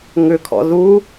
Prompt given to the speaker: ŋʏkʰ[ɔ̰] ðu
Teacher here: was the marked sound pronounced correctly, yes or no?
yes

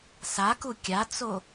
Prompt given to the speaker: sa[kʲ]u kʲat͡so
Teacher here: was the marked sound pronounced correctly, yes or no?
no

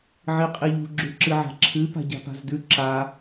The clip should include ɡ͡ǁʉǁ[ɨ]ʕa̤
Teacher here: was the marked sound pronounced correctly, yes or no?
yes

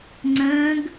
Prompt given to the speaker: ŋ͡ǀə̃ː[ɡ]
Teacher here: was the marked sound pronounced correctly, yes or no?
yes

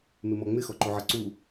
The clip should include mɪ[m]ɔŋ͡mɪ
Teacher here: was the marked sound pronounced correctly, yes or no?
yes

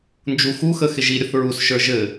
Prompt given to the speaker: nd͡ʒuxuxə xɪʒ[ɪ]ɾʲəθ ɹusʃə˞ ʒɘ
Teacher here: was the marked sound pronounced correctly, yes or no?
no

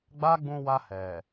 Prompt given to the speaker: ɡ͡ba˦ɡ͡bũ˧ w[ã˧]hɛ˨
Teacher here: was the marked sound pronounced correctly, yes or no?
no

